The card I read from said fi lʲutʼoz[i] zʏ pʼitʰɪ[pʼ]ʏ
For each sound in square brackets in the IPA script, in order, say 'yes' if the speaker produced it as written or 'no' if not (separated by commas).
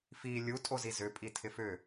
yes, no